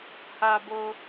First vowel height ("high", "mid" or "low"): low